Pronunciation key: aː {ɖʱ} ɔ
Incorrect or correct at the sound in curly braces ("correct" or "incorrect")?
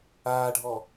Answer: correct